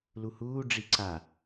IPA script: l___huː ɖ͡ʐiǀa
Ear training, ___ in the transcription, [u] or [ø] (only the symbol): u